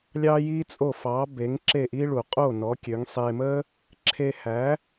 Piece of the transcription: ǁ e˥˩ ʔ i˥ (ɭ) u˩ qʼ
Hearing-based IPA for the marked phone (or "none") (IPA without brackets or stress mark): ɭ